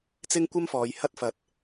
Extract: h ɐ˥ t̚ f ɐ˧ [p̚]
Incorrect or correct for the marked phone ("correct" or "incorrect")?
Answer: incorrect